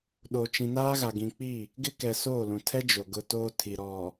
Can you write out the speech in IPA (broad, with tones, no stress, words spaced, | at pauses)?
ɗo˨t͡ʃĩ˨naː˦ɣa˨ ɡĩ˨k͡pi˦˨ | ɡɪ˦kɛ˨so˦˨lũ˨ tʰɛ˦d͡ʒo˨ ɡʊ˦toː˦ tʰi˨ɾɔ˨